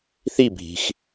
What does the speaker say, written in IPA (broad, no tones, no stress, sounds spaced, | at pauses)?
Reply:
θ i bʱ i̤ x